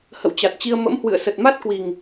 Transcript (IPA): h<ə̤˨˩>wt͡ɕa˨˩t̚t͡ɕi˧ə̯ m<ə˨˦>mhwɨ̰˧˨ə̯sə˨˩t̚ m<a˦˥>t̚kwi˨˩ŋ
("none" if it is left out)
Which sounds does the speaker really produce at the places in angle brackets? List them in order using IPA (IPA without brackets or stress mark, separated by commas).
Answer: ə̰˧˨, ə̰˧˥, a˦˥